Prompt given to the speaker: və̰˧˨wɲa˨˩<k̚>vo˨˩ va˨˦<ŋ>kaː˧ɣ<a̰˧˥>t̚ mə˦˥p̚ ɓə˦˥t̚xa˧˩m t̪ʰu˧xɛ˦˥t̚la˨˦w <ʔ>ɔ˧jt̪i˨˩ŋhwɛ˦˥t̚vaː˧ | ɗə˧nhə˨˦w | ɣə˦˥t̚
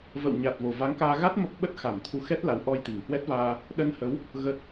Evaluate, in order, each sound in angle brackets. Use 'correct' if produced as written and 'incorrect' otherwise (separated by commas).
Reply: incorrect, correct, incorrect, correct